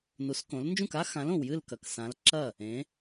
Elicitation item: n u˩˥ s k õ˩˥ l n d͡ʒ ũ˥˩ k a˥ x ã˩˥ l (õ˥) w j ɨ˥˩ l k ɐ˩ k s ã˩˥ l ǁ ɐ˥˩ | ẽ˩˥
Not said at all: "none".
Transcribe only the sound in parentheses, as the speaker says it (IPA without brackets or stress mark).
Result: õ˩